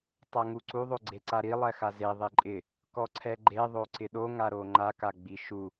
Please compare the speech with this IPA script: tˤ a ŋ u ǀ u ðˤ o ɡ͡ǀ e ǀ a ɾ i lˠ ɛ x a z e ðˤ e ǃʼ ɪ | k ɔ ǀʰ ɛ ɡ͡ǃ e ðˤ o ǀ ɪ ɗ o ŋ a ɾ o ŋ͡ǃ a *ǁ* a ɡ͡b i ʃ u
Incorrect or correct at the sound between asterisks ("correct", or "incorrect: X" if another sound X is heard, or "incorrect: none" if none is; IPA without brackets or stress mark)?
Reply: incorrect: k